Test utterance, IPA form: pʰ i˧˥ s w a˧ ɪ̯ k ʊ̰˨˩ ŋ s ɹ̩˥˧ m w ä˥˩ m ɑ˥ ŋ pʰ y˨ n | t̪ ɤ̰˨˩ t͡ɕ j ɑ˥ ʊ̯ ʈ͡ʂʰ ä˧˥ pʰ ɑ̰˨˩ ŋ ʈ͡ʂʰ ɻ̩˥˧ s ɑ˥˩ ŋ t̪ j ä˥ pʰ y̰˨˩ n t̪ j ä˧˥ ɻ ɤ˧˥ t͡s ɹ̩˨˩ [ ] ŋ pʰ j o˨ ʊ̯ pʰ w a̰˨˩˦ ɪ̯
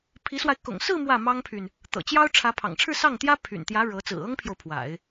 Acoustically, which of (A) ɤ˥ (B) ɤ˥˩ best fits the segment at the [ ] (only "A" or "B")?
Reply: A